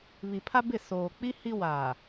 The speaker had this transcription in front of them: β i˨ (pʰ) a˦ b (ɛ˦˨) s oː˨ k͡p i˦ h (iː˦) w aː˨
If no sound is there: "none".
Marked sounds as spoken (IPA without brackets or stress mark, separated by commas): pʰ, ɪ˦˨, i˦